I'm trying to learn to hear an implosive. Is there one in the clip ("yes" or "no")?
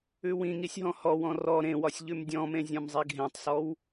no